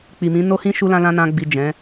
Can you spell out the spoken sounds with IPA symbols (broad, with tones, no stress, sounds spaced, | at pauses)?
k͡p i˨ m ĩ˨˦ n o˦ h ĩ˦ ʃ u˦ l ã˦ l ã˦ n ã˧ ɡ͡b i˨ d͡ʒ ɛ̃˨˦